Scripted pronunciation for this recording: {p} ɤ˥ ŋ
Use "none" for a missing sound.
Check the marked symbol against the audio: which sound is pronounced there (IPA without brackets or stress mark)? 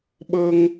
ɓ